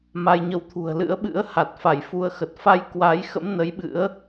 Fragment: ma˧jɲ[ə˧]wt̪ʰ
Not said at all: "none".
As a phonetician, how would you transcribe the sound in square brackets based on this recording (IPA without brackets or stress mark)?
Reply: ə˧